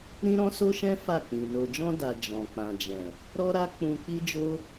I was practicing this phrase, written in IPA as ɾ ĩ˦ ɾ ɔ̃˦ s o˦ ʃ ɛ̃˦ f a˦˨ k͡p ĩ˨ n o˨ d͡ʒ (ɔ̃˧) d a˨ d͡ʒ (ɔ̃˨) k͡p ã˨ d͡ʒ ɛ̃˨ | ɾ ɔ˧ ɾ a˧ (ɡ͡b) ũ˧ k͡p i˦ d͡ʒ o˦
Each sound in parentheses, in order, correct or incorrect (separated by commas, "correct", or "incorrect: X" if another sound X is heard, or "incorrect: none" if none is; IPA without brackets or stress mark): correct, correct, incorrect: k͡p